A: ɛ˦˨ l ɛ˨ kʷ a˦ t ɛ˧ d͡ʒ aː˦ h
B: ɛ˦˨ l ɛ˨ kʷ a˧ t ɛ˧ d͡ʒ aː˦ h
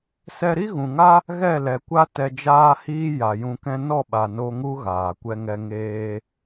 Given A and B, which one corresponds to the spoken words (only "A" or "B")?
A